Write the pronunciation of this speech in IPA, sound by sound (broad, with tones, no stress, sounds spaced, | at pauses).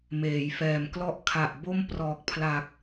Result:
m eː˩˦ j f ɛː˨˩ m k l ɔ˥˩ ʔ kʰ a˨˩ ʔ b o˥˩ m p r ɔː˨˩ k̚ pʰ l a˨˩ k̚